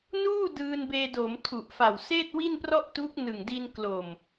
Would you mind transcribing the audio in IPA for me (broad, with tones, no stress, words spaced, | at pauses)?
nuː˥˩ dɯː˧nbeː˧do˩˦m tʰu˨˩ʔfa˨˩w seː˥˩t̚wi˥˩nprɔ˥˩ʔtuː˦˥k̚ nɯ˨˩ŋdi˧n klo˨˩m